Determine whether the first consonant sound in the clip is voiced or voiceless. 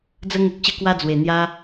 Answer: voiced